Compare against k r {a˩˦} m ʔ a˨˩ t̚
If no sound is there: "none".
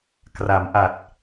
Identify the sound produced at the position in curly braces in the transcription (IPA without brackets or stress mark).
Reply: a˩˦